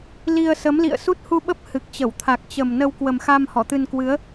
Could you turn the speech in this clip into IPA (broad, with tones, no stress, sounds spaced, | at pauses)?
l i˧ ə̯ s ə˨˦ m l ḭ˧˨ ə̯ s u˦˥ t̚ h u˧ ɓ ə˦˥ p̚ h ɨ˨˩ k̚ t͡ɕ ə˧˩ w t̪ʰ a˨˩ k̚ t͡ɕ ə˨˩ m n ə˧ w k w ə˨˩ m x a˧ m h ɔ˧˩ t̪ ɨ˧ n k w ɨ˨˦ ə̯